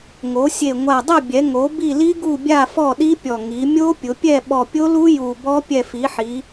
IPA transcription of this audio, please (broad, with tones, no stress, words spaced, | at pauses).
ŋo˩˧sʲe˨˩ ŋʷa˨˩dˤe˦˨bʲɛ˩˧ ŋo˩˧ bi˦˨li˦˥ɡu˦˨bʲa˦˨ fɔ˦˨ɗi˦˥pʲɔ˨˩ ŋi˩˧mʲo˦˥pʲʊ˩˧ pʲɛ˦˨ɓɔ˨˩pʲo˦˥lu˦˥ ju˨˩bɔ˦˥ pʲɛ˨˩fi˩˧ħi˩˧